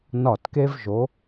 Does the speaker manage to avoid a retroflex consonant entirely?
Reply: yes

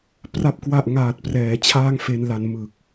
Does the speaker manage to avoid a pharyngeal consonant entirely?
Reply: yes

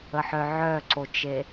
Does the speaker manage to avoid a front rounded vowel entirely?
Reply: no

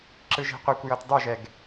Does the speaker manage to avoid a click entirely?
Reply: no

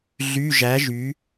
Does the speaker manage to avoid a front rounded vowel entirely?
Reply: no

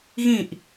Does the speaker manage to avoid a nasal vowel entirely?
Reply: no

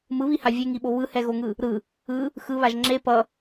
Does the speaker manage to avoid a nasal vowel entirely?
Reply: yes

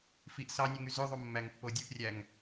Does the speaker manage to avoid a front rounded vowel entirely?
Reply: no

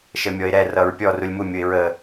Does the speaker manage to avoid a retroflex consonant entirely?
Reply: yes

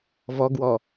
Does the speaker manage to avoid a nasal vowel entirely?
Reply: yes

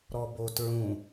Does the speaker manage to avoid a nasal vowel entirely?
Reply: no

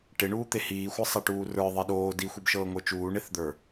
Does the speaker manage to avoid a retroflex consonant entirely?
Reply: no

